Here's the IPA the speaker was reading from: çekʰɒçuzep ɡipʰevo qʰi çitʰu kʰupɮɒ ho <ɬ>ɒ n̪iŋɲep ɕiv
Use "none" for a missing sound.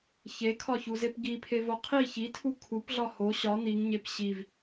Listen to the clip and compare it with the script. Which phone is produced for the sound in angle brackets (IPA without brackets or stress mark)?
ɕ